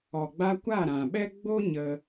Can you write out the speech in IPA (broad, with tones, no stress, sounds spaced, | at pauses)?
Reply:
ɔ˨ ɡ͡b a˧ kʷ a˦˨ ɾ ã˨ ɓ ɛ˦ ɡ͡b o˦ ɲ ə˦